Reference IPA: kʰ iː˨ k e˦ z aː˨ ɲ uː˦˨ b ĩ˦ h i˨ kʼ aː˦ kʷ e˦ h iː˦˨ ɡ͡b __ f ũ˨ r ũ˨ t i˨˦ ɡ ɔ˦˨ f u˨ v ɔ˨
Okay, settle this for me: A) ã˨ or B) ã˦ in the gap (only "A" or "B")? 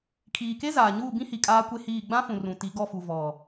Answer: B